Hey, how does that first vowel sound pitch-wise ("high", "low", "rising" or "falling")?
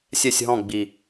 falling